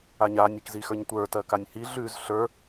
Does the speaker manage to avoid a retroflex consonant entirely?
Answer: yes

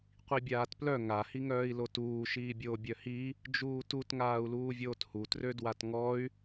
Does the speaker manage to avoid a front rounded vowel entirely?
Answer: no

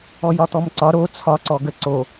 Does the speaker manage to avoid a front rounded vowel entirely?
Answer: yes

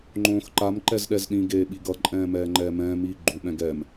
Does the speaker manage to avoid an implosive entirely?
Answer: no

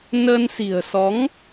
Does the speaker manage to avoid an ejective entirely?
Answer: yes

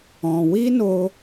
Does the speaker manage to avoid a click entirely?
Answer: yes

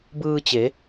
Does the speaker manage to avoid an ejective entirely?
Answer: yes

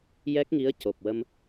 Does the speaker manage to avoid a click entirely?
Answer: yes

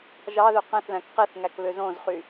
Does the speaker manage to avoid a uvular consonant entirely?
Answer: no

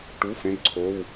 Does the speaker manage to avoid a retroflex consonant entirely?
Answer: no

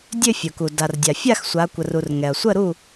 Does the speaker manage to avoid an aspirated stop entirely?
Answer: yes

